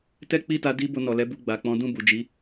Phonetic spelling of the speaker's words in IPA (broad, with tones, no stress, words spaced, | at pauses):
tɛ˦k͡pi˦˨ta˧ di˦ bo˧nɔ˨lɛ˨˦ bu˧ ɡ͡ba˨k͡pɔ̃˨˦ dũ˦˨bu˨d͡ʒi˨˦